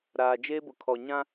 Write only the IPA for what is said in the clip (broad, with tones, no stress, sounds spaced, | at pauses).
ɾ aː˨ d͡ʒ eː˦ b ʊ˨ kʰ ɔ˨ ɲ ã˦